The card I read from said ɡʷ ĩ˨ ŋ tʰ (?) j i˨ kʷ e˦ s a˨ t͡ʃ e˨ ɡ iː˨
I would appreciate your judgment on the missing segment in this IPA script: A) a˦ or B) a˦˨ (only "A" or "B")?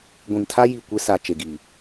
A